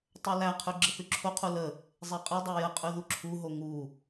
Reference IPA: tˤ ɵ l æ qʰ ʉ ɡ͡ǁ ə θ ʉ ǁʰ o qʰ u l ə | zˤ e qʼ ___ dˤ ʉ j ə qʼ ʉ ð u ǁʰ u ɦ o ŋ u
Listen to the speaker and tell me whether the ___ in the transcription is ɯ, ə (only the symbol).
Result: ɯ